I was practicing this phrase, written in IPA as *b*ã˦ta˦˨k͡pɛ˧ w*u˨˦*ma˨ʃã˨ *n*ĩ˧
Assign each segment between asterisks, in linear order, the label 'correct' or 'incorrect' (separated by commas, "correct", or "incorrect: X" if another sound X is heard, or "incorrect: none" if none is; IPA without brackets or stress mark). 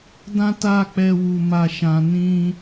incorrect: d, incorrect: u˨, correct